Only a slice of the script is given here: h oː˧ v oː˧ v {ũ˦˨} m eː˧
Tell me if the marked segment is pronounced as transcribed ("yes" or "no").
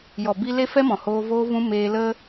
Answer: no